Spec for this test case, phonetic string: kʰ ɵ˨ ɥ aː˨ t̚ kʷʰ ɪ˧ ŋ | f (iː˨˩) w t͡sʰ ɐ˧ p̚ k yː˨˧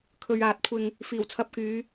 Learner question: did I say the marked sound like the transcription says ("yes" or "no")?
yes